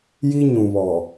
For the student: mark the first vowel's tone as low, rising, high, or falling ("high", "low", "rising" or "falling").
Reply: high